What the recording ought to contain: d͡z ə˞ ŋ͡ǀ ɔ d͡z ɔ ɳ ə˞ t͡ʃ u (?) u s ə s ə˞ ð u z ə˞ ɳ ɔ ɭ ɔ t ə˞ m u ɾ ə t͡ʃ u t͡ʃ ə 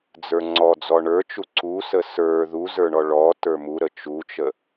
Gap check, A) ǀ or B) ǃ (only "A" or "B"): A